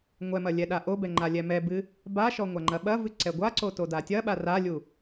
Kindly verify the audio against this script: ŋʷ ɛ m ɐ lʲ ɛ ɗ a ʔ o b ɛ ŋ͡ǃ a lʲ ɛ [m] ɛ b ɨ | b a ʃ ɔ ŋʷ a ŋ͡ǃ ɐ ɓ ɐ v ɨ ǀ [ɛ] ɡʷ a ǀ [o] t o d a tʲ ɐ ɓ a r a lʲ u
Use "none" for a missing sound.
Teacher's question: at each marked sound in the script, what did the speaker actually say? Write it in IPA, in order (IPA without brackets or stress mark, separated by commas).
m, ɛ, o